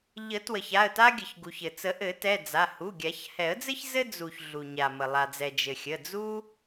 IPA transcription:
ʎ ə˨˩˦ t w ə˩ ç a˩˧˩ ə̯ t a˥ ɡʲ ə˩ ç ɡ u˩ ç ɘ˩ t͡s ə˨˩˦ ʔ ɘ˨˩˦ t ɛ˩˧˩ d͡z a˩˧˩ h u˩˧˩ ɡʲ a˨˩˦ ç h ɛ˨˩˦ ə̯ d͡z ɘ˥ ç z ɘ˥ d͡z u˩ ç ɮ u˩ ɲ a˩ m ə˩ lˠ a˩ d͡z ɛ˩ d͡ʒ ɘ˩ xʲ ə˩˧˩ d͡z u˥

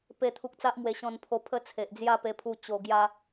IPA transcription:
p e˥˧ t̪ʰ u˦ k̚ t͡s a˦ ʔ m w e˧ ɕ ɔ̃˧ n pʰ o˧ pʰ ə˦ t͡sʰ e˨ ʔ d͡z j a˥˧ p e˧ pʰ u˧ t͡ɕ o˧ ɡ j a˦

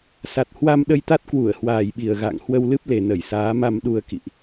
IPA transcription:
s a˨˩ t̚ h w a˧ m ɗ ə˧ j t̪ a˦˥ t̚ k w u˧˩ ə̯ h w aː˨˩ j ɓ i˨˩ ə̯ ɣ a̰ː˧˨ ŋ h w ə˧ w l ɨ˦˥ p̚ l e˨˩ n ə˧˩ j s aː˨˦ m a˧ m ɗ u˧ ə̯ k ḭ˧˨ ʔ

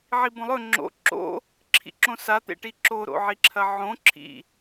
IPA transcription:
ʕ i b õ lˠ ɵ ŋ͡ǁ o̰ ǁ o̰ | ǁʰ ḭ ǁ õ s a t̪ ḛ ʈ i ǁ o ɾ o̰ ʕ i ǁʰ ɐ ʕ õ ǁʰ ḭ

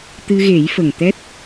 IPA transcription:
t̪ ɨ˧ ɣ e˨˩˦ j f ə˨˩ ŋ t̪ ɛ˦˥ t̚

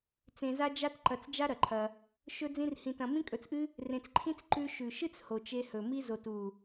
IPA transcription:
t͡s ẽ˧ z a˦ d͡ʒ a˦ t ǃ ɐ˧ t͡s d͡ʒ a˦ ɾ ɐ˨ ǃʰ ɐ˧ | ʃ ɵ˦ d͡z ĩ˦ r h ĩ˧ t ɐ̃˧ m ĩ˦ kʼ ɵ˧ t͡s ʔ ɨ˦ | r ẽ˧ t͡s ǃʰ ĩ˦ t͡s ǃ ʉ˧ ʃ ʉ˨ ʃ ɨ˦ t͡s h o˨ t͡ʃ e˧ h ɵ˨ m i˧ z o˨ t u˨

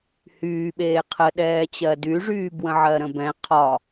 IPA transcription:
h yː ɓ eː qʰ ə ɗ ɛː t͡ɕ ɜ d y ʐ yː b w ə̃ ʕ ɜ ɾ ə̃ b ɛ̃ qʰ ɒ

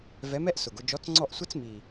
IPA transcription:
v ɛ˧˥ m ɛ˥ ʔ s ʊ˨˩ ɡ ʊ˥˧ d͡ʒ ɔ˧˥ t͡s ŋ͡ǀ ɔ˥˧ ʔ sʷ ə˥ t͡s m i˨˩

